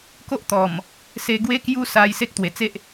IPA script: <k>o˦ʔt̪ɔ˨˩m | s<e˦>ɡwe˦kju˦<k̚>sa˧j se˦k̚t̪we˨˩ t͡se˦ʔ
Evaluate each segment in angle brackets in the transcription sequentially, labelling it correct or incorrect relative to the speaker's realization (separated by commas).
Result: correct, incorrect, incorrect